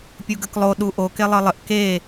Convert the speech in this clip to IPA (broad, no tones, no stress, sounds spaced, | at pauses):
pʲ u ɡ ə k lˠ o ɗ u ʔ o k e lˠ ɤ lˠ ə ʔ k e